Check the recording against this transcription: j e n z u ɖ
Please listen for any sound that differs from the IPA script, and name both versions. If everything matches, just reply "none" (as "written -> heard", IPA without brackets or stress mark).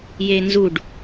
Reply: none